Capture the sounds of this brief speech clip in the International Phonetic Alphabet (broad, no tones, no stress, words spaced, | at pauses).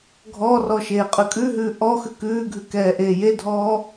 ɡʱɔrɔ ʃeːqʼʉkʼʉɦʉː ʔɔ xʉkʉːɡʱʉ kɛːʔeːjedʱɔː